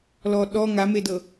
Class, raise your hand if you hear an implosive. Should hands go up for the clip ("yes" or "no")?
yes